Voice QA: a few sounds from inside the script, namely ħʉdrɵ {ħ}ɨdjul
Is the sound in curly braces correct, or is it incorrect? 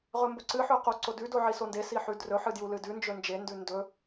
correct